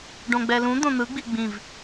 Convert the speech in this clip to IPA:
ɖ õ ɡ͡b ɛ l ũ d̪ õ n̪ ɯ ɡ͡b i ɡ͡b ĩ v

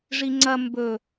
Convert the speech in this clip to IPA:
ʐ i ŋ͡ǀ ɐ m b ɵ

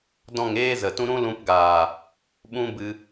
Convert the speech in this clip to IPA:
d ɔ̃˦˨ ŋ eː˦ z ə˨ t ũ˦ ɾ ũ˦ l ũ˧ p ɡ aː˨ | ɓ ũ˦ b ɨ˧

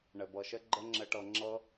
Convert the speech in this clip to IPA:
ɳ ɘ˨ b ɤ˨ ʃ ɘ˦ ɡ͡ǃ ə˦ ŋ͡ǁ ɘ˧ ʈ ɤ˧ ŋ͡ǁ ɤ˦

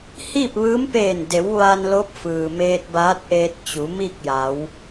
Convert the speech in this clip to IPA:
h iː˥˨ p̚ ʋ ɯː˧˥ m p eː˧˩ n d e˩˧ w ʋ a˧ n l o˧˥ p̚ f ɯː˩ m eː˧ t̚ b aː˧˥ t̚ ʔ eː˧ t̚ t͡ɕ u˩˧ m i˥˨ k̚ j a˩˧ w

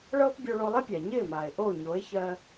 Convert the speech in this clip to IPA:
ɭ ɤː˥ p bʲ o˧ ɭ o˧ lˠ ɪ˥ pʲ a˩ ɲ ɪː˥˩ m aː˩ e̯ ʔ o˥˩ ɲ o˩˥ e̯ ç ɜ˥

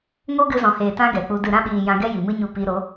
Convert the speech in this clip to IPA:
ŋ o˦ ɡ ɨ˧ z ɔ̃˨ h eː˨ t ã˦ ɡ ɛ˨ k͡p u˧ d ɨ˨ ɾ ã˧ ɓ iː˨ j ã˧ ɡ ɛ˦ j i˨ m ɨ˦ ɲ u˧ p i˧ ɾ o˨˦

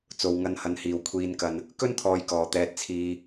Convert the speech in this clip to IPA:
t͡s o˨ w ŋ ɐ˧ n h ɐ˨ n h iː˨˩ w kʷʰ iː˨ n k ɐ˨ n | k ɵ˥ n t̪ʰ ɔː˨ j k ɔː˨˩ t̪ ɛː˨ t̚ t͡sʰ iː˨

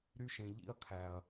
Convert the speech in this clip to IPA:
ɾ y˦ ʃ ẽ˨ ʎ ḭ˦ ɐ̯ kʰ æ˨ ɐ̯

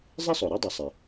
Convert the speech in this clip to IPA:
zˤ ɪ˥ sˤ o˩ ɾ i˥ dˤ ɨ˩ sˤ e˩

